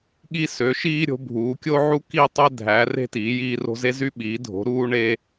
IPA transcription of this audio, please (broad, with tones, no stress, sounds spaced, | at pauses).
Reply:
ɠ i˥ s ø˩˥ ʃ iː˥ ɾʲ o̤˩˥ bʱ uː˩˥ kʲ o˥ ʕ u˥ k i˥ tˤ e˥ dʱ æ˩˥ r e̤˥ t iː˩˥ j iː˥ r o̤˥ z e˥ z y˥ ɓ iː˩˥ dʱ o̤˩˥ ɾ uː˥ ɳ e˥